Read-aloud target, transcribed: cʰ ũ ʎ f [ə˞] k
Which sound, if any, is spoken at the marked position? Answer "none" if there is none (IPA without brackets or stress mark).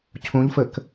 ə